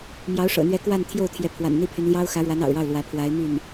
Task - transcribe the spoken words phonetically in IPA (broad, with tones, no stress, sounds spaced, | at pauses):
m j ɑ˧˥ ʊ̯ ʂ ɤ̰˨˩ n̪ ɥ ɛ˧˥ k w a˥˧ n t̪ʰ j o˥˩ ʊ̯ t̪ʰ j ɛ˧˥ pʰ w a̰˨˩ n n̪ i˥˩ pʰ y˧˥ n l j ɑ˥ ʊ̯ x ä˧˥ ɻ w a˧˥ n ɑ̰˨˩ ʊ̯ ɻ ɑ˥˩ ʊ̯ l w ä˧˥ pʰ w a˧˥ ɪ̯ m y˥˩ n